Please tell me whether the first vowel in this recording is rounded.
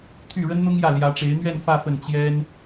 yes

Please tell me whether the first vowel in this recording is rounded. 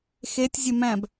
no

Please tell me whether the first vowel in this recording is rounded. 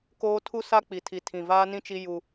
yes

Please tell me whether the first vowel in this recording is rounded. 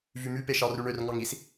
yes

